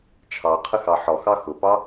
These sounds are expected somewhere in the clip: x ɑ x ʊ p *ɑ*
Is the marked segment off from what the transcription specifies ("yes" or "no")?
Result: no